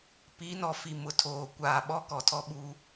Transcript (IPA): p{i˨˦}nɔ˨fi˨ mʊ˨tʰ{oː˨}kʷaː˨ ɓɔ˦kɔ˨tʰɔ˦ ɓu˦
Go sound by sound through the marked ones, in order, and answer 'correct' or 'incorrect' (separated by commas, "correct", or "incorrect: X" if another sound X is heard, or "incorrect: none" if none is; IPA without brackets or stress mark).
correct, correct